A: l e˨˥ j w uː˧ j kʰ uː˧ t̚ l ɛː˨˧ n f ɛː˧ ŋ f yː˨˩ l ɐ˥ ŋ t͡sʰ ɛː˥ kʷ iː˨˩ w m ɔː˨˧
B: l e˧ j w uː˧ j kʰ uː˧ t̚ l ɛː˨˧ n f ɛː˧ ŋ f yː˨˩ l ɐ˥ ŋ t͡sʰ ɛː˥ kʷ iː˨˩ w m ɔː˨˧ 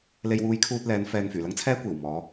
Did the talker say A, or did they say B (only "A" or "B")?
B